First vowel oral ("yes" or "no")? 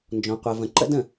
no